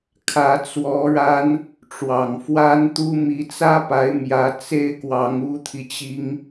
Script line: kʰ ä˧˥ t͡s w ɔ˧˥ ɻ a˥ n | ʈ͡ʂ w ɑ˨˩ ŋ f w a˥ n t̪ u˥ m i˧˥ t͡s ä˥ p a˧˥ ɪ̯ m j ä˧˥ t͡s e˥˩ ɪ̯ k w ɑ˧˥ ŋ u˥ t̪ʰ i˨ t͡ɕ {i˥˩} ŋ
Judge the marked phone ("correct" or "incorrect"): incorrect